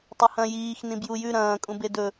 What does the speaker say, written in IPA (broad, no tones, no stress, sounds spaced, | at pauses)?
tˤ ɐ h ɐ̃ j iː x n ĩ b j u j ʉ ɾ ɐ̃ː kʼ ũ b e d ɵ